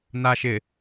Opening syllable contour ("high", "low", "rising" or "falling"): low